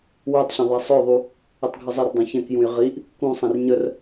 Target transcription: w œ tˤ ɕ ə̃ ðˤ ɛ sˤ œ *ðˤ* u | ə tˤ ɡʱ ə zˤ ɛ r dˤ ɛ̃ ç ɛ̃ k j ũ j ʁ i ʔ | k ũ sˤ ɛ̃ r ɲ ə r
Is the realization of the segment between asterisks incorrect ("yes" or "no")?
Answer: no